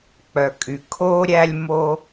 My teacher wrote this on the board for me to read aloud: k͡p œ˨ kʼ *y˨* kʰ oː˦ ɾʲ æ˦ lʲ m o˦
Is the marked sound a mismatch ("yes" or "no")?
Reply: no